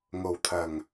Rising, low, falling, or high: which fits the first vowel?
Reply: low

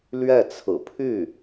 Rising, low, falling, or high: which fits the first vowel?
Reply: falling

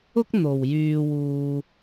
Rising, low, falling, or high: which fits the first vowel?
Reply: high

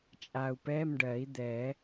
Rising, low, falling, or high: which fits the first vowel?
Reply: low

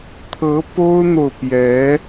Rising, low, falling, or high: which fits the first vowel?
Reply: rising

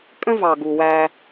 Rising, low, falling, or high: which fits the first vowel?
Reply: high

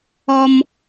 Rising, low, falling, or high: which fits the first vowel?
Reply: high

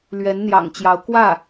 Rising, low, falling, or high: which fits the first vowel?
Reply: rising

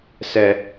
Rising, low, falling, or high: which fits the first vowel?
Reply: high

